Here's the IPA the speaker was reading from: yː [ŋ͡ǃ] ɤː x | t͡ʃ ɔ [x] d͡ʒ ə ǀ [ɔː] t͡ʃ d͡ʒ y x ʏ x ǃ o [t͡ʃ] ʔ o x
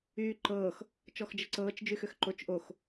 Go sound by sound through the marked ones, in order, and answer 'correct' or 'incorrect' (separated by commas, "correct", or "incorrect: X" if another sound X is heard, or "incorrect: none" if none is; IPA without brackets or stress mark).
incorrect: ǃ, correct, incorrect: ɤː, correct